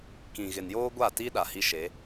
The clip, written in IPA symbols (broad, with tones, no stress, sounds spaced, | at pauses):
k ĩ˨ ɣ ɪ˨ n j oː˦ ɡʷ a˦˨ t i˦ ɗ a˨ h i˦ ʃ e˨˦